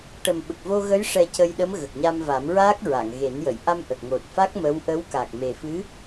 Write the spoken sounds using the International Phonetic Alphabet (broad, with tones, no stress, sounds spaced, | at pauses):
ʈ ə˨˩ m ɓ ə˨˩ k̚ v o˧ ɣ ə˧˥ j ʂ ɛ˧ c ə˧ j ɗ ə˧˥ m ɣ ə˨˩ k̚ ɲ a˧ m v a˨˩˦ m ɹ aː˦˥ k̚ ɹ a˨˩˨ ŋ ɣ e˨˩˦ n j ə˨˩˨ j ʔ a˧ m ʔ ə˨˩ k̚ ŋ o˨˩ t̚ f a˦˥ k̚ m ə˧˥ w ʔ ə˧˥ w k a˨˩ k̚ m e˨˩ f ɨ˧˥